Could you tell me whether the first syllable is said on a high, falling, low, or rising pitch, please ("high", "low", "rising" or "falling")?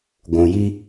low